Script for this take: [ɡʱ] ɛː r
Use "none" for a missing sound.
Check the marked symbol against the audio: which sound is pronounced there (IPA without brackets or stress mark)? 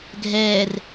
ɡʱ